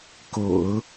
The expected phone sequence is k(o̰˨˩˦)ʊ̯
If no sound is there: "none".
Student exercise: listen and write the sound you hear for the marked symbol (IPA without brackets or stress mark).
o̰˨˩˦